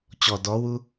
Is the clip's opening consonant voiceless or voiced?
voiceless